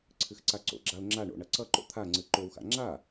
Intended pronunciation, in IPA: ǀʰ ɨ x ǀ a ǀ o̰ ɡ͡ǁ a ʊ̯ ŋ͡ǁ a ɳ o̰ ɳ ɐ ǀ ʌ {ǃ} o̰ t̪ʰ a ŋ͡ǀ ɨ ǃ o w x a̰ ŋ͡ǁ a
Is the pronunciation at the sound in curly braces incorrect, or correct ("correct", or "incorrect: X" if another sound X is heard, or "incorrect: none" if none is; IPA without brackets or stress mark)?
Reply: correct